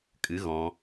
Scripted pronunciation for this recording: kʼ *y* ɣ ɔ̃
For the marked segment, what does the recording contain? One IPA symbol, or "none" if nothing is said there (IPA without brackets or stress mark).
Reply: ɨ